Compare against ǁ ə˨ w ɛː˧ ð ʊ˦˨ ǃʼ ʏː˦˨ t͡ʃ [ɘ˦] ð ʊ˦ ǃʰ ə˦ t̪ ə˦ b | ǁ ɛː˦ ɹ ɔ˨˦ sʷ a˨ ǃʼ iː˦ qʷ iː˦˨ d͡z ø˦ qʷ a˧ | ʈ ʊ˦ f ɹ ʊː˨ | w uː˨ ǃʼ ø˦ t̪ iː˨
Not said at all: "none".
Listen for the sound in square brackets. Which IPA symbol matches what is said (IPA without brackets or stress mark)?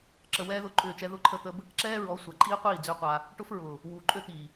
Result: ɛ˦